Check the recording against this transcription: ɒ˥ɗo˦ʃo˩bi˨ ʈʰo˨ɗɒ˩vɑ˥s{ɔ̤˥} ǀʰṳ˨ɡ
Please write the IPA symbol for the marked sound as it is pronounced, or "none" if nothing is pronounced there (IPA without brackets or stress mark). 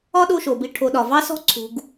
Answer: ɔ̤˥